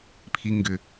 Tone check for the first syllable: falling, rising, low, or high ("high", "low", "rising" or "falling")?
low